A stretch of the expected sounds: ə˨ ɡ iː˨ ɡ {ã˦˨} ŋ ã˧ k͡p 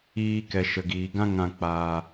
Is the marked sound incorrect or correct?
incorrect: ã˦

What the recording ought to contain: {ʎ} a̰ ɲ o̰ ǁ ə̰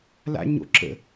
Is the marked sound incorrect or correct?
incorrect: l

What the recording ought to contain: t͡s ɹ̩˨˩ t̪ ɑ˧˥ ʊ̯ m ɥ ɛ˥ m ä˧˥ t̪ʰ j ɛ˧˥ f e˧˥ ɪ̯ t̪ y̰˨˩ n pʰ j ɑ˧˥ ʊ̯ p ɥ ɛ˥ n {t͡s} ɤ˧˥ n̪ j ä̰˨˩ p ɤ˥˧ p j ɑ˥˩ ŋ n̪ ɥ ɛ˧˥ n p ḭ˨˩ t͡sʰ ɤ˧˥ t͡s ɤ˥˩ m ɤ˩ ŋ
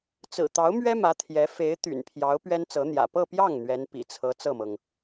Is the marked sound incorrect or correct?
correct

